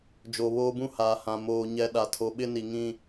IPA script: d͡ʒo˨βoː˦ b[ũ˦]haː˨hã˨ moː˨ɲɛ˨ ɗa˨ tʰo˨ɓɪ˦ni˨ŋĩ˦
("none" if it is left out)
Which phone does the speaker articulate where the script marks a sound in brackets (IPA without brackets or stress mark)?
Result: ũ˦